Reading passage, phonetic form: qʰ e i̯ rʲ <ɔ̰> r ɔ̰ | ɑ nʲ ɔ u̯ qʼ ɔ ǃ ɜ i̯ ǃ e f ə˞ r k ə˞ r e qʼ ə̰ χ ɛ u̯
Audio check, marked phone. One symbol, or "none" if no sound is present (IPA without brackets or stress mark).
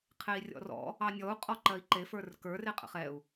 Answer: ɔ̰